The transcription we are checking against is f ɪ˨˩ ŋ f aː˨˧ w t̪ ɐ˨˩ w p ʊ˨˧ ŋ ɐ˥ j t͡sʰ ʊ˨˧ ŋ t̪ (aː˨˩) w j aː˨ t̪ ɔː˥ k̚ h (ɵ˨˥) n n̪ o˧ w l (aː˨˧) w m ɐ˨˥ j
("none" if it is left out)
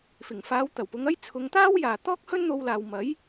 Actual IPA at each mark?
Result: aː˥, ɵ˥, aː˨

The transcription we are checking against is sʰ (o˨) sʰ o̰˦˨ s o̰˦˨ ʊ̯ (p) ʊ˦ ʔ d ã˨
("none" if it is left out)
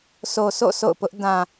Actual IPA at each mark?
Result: o˨, p

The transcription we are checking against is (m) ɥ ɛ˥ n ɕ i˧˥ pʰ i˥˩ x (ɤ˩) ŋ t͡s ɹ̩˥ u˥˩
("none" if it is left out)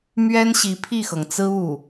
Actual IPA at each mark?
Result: m, ɤ˩

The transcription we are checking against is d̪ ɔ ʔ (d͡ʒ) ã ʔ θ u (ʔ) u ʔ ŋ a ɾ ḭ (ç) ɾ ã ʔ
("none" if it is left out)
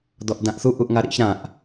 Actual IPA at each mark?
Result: d, ʔ, ç

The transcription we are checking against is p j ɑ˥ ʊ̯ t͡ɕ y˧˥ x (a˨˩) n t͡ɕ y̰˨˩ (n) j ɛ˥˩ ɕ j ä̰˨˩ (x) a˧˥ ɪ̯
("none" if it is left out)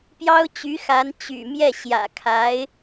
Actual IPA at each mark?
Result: a˧˥, m, kʰ

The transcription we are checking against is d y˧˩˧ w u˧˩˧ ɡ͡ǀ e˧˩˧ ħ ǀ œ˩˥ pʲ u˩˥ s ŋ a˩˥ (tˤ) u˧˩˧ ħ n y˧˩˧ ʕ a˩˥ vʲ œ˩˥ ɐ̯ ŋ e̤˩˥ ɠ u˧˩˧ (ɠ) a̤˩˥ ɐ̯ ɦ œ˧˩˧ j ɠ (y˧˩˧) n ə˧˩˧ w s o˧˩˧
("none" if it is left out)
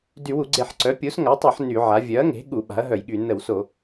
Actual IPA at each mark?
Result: tˤ, ɓ, y˧˩˧

